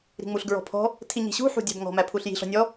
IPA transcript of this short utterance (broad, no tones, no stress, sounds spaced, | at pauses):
ɾ i̤ ŋ͡m u ɬ ɡ ɹ ɔ̤ pʰ ɔ̤ | tʰ i ɲ i̤ ɕ ṳ ħ ṳ dʲ æ̤ b ŋ ɔ̤ m æ pʰ u ɬ j i̤ ɬ ɔ̤ nʲ ɔ